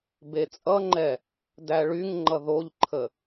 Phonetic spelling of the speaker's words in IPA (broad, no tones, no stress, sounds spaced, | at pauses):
b e t͡sʼ ʌ ŋ͡ǃ ɛ | d æ ɭ y ŋ ŋ͡ǃ ʌ ð o ʎ ǃʰ ə